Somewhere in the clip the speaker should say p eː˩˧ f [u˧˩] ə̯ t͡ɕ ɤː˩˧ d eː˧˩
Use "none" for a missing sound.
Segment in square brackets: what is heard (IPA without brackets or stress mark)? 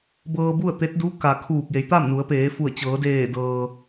u˧˩